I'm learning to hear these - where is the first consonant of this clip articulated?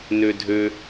tongue tip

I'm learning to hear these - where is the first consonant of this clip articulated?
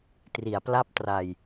tongue tip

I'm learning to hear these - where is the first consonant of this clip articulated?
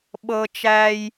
lips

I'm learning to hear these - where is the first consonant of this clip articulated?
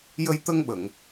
palate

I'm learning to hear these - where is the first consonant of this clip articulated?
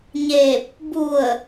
palate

